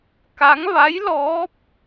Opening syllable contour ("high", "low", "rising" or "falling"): rising